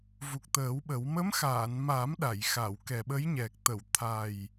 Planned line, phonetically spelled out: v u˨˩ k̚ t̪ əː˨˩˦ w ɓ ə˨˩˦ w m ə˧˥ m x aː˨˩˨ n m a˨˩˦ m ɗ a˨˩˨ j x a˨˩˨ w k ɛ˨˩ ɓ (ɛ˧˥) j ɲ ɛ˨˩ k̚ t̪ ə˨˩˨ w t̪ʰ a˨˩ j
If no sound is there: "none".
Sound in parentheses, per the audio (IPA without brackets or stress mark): ə˧˥